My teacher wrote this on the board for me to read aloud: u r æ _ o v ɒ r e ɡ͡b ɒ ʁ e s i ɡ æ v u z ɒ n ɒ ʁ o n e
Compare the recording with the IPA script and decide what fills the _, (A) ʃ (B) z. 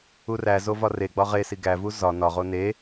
B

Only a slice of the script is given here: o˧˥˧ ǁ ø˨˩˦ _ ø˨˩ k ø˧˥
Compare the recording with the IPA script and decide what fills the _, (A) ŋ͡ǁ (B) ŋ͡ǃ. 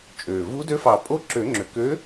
A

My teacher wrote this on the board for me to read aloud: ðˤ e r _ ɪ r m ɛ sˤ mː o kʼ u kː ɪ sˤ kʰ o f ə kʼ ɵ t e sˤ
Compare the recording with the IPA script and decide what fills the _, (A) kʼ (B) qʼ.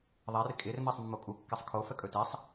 A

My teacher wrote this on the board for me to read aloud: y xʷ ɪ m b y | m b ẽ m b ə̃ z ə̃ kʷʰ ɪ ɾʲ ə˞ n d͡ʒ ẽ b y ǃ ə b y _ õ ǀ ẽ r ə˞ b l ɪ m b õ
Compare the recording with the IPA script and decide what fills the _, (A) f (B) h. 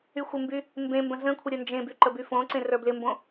A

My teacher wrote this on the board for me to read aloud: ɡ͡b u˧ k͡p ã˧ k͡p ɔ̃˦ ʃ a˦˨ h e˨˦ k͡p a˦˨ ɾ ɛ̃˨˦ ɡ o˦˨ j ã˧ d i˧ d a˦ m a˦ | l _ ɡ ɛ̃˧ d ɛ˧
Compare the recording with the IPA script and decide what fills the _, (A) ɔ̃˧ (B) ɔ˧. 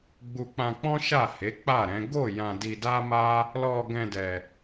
B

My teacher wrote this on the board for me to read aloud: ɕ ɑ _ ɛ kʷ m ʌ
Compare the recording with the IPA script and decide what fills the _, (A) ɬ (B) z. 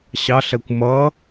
A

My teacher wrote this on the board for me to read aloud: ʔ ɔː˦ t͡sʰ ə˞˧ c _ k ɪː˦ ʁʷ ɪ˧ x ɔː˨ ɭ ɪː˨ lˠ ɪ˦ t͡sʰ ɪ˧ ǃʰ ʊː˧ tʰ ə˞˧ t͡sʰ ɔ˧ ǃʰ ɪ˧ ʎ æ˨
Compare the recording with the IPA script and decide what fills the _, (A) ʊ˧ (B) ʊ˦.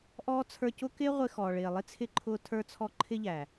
B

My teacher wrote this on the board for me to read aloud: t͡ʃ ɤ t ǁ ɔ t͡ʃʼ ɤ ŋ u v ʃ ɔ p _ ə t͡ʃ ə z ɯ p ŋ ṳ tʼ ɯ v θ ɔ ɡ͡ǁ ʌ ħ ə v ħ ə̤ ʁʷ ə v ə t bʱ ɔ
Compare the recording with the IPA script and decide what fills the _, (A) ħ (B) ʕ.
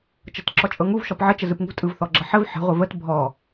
B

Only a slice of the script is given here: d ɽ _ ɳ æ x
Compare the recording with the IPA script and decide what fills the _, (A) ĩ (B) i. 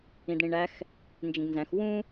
A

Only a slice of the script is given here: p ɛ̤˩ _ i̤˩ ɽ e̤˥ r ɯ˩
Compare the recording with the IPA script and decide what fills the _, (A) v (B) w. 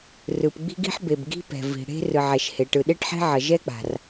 A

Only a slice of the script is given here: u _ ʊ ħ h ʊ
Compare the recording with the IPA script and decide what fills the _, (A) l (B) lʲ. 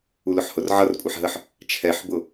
A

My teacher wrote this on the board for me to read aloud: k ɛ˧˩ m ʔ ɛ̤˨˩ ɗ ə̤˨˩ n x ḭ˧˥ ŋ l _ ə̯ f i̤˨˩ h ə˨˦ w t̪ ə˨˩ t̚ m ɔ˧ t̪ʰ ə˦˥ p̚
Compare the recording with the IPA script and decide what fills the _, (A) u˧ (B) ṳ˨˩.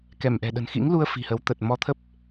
A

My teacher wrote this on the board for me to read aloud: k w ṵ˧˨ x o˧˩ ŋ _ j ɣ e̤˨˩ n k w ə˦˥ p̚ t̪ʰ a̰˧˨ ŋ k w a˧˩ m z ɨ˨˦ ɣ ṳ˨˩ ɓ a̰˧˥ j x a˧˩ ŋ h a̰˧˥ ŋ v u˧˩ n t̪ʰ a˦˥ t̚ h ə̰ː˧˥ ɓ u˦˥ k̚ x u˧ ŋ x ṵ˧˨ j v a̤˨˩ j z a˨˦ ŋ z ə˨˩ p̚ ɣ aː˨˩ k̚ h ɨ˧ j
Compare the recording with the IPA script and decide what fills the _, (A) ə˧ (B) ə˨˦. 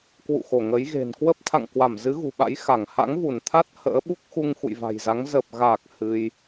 B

